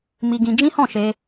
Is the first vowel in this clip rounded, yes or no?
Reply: no